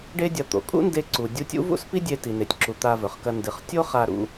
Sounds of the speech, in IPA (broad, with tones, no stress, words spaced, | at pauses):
ɖe˥dʲɐ˧ t̪o̰˩kʼṵ˥nde˧ǀu˩ dʲu˧tʲṵ˥ vṵ˥spi˥dʲe˧ ti˩ne˩tʲǁu˩ t̪a˧vɵ˩χkɐ˧ ndɨ˩χ tʲo˥χa˧ ɾṵ˧